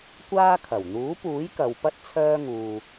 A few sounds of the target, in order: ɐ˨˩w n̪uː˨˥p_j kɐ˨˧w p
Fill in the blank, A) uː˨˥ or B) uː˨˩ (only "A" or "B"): A